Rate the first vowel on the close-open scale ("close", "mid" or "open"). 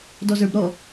mid